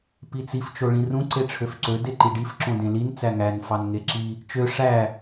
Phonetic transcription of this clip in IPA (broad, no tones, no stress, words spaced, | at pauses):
pit͡sif t͡ʃoɭĩrũ ǀeʈ͡ʂʰøfǀø deǃiɖif ǁõdẽlin t͡sæŋæn fɑnŋeǁi | t͡ʃø ʂæ